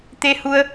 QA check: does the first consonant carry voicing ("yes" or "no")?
no